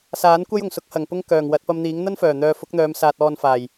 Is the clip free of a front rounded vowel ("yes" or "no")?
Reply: no